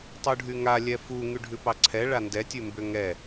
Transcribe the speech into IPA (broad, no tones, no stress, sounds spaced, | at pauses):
tˤ u ɖʱ y ŋ a lʲ ɛ f u ŋ y ɖʱ ʉ p ɑ ǀʰ ɛ ɭ a n d ɛ tʲ ʉ m b ʏ ŋ ɛ